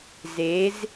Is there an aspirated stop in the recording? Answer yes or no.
no